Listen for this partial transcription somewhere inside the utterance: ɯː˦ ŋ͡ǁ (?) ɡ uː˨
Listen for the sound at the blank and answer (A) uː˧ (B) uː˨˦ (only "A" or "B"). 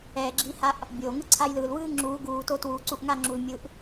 B